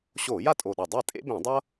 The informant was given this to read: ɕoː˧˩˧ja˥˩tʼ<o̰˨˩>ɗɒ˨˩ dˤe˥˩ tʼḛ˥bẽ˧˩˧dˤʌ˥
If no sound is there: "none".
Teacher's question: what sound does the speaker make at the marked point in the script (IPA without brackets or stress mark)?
o˨˩